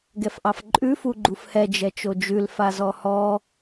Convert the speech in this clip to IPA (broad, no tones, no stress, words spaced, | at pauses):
ɡɛfʔɑfǃʼʉ fuɡ͡ǃufhɛ d͡ʒɛt͡ʃod͡ʒʉl fazɔhɔ